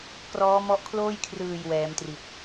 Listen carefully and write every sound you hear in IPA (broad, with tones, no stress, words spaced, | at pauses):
krɔː˦˥mɔ˦˥ʔ kʰloː˥˩jkʰrɯː˨˩j wɛː˩˦mtri˨˩t̚